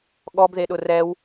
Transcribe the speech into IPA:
ɠ ɔ b ð e ɗ ʊ r ɛ w

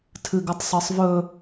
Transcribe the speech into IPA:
tʰ ɨ ɡ ə tˤ sˤ ɜ sˤ v ɵ

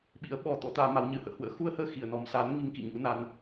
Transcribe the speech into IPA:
ɓ ḭ˧˥ ə̯ ɓ ɔ˧ t̪ ɔ̰˧˥ t̪ aː˧ m a˨˦ w ɲ ɨ˨˦ h ə̰ː˧˨ h w ə̰ː˧˥ x u˧ ə̯ h əː˧ x i˧˩ ə̯ n ɔ˨˩ m s a˨˦ n ŋ i˧ ŋ k ḭ˧˨ ɲ ṵ˧˥ n a˧ n

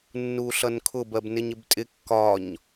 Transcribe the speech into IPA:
nː u ɬ ʌ n kʰ ʊ b ɜ b n ɪ ɲ ɪ b tʼ ɪ kː ɒ ɲ

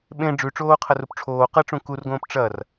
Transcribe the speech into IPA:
ɓ ẽ ɖ͡ʐ ʉ ʈ͡ʂ oː qʰ ɐ r u p ʈ͡ʂʰ oː q ɐ ʈ͡ʂ ũ k u r ɡ õː p ʈ͡ʂ ɐ r

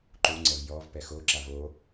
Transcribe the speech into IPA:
ǃ u ŋ͡ǀ ɛ v j ɔ v p ɛ x o ǁ a v o

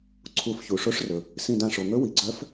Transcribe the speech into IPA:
ǀʰ u˧˩ f ç u˩ ʂ o˧˥ ʂ r ɵ˩ | s ĩ˧˩ d ã˧˩ ʂ o˩ ŋ ɵ˧˥ w i˩ ɡ͡ǀ œ˧˥ f

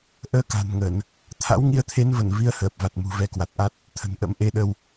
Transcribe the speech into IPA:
ʔ əː˧ k a̤˨˩ n ŋ ə˧˩˨ n | t̪ʰ a̰˧˥ w ŋ i˧ ə̯ t̪ʰ e˨˦ n v ə˧˩ n v i˨˦ ə̯ h əː˨˩ p̚ v a˨˩ t̚ m ṳ˨˩ v ɛ˨˦ k w a˨˩ t̚ ʔ a˦˥ t̚ | t̪ʰ ə̤˨˩ n ʔ ə̰˧˥ m ʔ e˨˦ ɗ ə˧ w

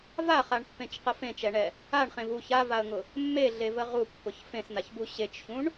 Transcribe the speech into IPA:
v a χ a ɳ pː ẽ t͡ʃ q ə f ẽ t͡ʃ ɛ ɳ ɛ | a ɳ χ ẽ v u ç a v a ə̯ ŋ ʊ | mː e ɮ e v ə ʁ u pː ʊ ç f ẽ s n a ç b u ɕ e t͡ʃ ç ũ ɳ

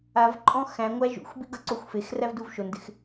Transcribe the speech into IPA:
a v ǃʼ ɔ̃ x æ̃ ŋʷ æ ʒ ṵ xʷ b i ɡ ʌ ǀ o xʷ f e x r æ v d u v ʃ o n d ɪ x

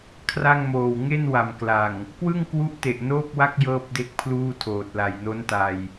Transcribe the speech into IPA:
kʰ r a˥˩ ŋ m oː˨˩ w ŋ e˥˩ n w a˨˩ m k l a˨˩ ŋ | k w ɯ˥˩ ŋ k w u˦˥ ʔ t e˨˩ ʔ n oː˥˩ k̚ w a˥˩ k̚ j ɤː˥˩ p̚ d e˥˩ k̚ pʰ l uː˥˩ tʰ oː˨˩ t̚ l a˨˩ j n o˦˥ n t a˧ j

